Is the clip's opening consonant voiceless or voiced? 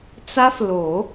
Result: voiceless